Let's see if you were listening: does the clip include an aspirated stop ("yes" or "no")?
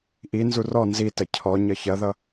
yes